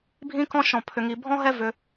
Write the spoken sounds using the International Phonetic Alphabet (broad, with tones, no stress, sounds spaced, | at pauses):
bʱ ĩ˥ k ɔ̃˥ ʃ ɔ̃˧ pʰ ʏ˧ ŋ i˧ bʱ ɔ̃˥ ɦ ɛ˥ v ʏ˧